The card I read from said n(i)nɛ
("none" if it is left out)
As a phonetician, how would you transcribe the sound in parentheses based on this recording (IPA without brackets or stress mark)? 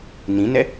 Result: ĩ